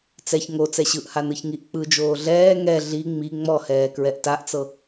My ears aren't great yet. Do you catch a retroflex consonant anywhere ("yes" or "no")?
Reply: no